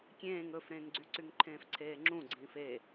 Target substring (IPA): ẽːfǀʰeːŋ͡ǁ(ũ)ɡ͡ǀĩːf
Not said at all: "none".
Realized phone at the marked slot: ũ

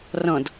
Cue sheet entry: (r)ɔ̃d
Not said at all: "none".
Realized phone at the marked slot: r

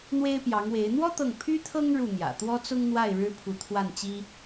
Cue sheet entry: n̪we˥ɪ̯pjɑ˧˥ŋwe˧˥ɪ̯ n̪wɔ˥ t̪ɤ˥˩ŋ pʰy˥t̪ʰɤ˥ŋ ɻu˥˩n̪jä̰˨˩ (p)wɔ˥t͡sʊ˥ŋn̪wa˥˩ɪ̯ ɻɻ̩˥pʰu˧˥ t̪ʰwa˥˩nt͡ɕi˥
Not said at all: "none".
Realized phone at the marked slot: t̪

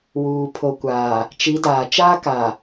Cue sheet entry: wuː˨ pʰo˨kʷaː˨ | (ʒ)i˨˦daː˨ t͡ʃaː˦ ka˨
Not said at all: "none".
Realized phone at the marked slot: t͡ʃ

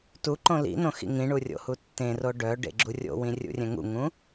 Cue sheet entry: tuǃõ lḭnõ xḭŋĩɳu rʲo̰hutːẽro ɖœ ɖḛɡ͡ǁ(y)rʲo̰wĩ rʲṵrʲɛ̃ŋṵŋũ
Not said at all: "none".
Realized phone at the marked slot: u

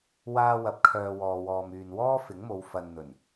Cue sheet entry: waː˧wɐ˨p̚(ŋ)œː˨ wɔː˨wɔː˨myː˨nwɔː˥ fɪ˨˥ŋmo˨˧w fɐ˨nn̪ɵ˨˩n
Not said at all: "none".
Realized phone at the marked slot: kʰ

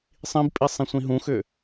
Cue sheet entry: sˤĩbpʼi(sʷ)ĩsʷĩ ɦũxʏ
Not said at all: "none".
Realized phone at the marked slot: sˤ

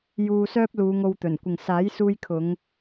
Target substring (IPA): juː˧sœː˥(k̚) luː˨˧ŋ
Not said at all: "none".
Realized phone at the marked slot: p̚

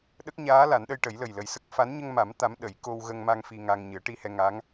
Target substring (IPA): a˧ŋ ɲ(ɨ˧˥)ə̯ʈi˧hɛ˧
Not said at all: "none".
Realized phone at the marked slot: ɨ˨˩˦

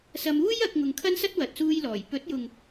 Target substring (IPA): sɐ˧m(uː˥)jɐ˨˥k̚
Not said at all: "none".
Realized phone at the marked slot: uː˥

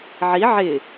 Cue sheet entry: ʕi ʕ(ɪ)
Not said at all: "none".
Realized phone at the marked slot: ɪ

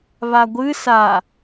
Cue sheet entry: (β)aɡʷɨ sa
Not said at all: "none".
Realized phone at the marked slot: β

